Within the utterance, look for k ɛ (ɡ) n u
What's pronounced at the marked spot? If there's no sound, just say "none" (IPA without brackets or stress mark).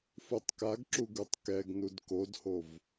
ɡ